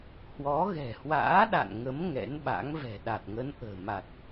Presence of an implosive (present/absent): present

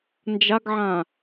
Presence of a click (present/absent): absent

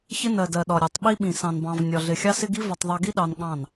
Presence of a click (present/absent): absent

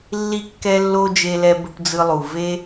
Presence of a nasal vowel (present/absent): absent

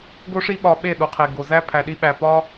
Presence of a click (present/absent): absent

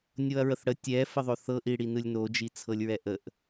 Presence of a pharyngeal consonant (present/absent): absent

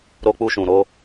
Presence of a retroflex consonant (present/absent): absent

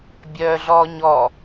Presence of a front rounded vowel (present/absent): present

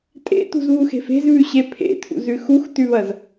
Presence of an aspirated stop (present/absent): present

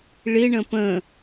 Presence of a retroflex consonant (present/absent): present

